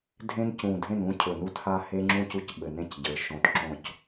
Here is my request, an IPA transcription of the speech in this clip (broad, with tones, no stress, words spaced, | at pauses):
dʱẽ˦ncũ˨˩dʱẽ˥˨nũ˦ cʰɵ˨˩nu˦tha˦ he˦ŋ͡ǁũ˥˨cu˦c ɓɘ˨˩nẽ˥˨cɟə˞˩˧ ʃõ˨˩tǁõ˥˨c